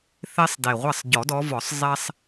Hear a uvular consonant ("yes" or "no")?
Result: yes